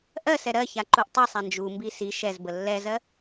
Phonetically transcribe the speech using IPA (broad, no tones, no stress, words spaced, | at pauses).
ʔɜsɛ ɾɜça ǃuʔtˤisˤa nd͡ʒumbi si ʃɛzbə lːɛzɜ